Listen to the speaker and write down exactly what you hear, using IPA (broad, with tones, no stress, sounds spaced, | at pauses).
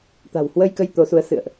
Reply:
t̪ a̤˨˩ w h w ə˧ j k ə˧ j t̪ o˨˦ s u˨˦ ə̯ s ɨ̰˧˨ ə̯ ʔ